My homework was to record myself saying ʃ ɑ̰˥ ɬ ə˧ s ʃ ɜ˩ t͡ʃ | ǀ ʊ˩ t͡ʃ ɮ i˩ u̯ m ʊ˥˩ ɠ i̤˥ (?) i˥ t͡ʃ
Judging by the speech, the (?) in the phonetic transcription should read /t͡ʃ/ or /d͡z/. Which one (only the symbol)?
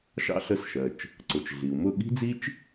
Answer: d͡z